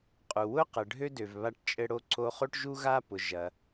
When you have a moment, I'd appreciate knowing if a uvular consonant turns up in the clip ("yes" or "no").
yes